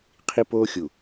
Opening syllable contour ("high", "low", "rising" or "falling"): high